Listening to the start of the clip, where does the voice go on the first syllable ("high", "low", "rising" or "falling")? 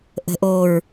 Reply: low